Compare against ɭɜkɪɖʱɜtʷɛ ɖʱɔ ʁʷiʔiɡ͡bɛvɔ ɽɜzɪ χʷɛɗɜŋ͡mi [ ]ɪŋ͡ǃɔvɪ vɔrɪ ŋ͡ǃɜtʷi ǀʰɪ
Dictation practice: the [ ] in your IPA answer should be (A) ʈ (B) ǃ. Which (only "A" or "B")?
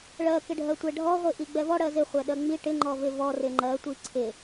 A